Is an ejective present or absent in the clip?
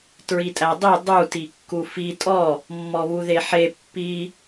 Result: present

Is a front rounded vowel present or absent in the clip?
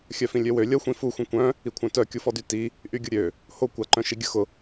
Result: present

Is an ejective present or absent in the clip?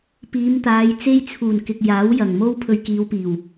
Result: absent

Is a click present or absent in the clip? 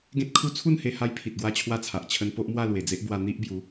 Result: absent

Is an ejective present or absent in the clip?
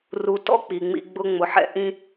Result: absent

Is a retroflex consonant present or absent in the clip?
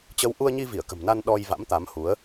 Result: absent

